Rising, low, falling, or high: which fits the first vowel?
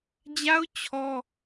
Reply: high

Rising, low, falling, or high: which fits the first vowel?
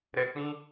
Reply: low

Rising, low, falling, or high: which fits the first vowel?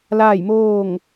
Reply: falling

